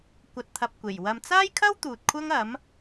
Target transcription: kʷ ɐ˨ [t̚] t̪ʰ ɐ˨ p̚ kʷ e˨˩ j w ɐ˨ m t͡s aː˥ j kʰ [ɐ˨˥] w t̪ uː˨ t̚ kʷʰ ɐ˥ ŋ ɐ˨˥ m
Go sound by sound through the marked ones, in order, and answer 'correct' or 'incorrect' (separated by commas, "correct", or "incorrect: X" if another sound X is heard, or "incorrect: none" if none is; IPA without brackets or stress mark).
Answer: correct, incorrect: ɐ˥